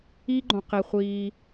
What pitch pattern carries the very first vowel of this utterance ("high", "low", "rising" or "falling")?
high